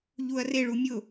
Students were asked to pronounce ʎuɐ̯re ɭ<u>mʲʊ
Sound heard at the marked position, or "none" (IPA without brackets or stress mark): u